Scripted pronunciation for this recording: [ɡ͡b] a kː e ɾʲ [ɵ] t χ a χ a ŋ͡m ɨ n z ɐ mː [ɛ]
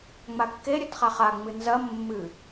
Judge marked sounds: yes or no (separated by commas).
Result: no, yes, no